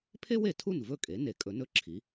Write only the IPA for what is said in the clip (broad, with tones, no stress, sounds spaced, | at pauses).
pʰ e˥ w e˩ tʰ u˥˩ n v ɵ˥˩ kʼ e˩˥ n e˩˥ kʼ ɵ˩˥ n ɵ˥˩ ǁʰ i˩˥